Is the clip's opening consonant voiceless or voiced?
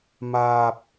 voiced